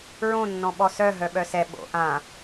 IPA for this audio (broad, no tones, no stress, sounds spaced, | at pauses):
ɹ õ nː ɔ̃ ɓ ɔ s œ ɦ œ ɓ œ s ɛ ɓ o̰ ʔ ã